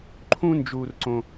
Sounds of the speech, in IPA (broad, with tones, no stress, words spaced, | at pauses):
ǃʰũ˥nd͡ʒuː˧rǀõ˧